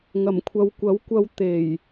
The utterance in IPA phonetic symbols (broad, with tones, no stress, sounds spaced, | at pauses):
ŋ ɐ˨˩ m kʷʰ ɐ˨ w kʷ ɐ˨˥ w kʷ ɐ˧ w t̪ e˨˩ j